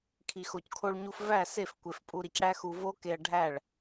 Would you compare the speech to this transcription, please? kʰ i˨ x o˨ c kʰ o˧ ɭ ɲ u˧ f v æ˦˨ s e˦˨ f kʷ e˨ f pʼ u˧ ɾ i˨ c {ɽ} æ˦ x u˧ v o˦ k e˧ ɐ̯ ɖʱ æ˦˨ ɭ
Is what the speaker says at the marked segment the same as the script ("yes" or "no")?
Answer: yes